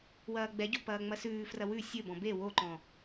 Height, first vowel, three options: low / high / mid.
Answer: low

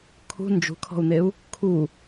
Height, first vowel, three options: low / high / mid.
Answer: high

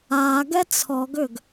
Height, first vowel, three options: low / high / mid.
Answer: low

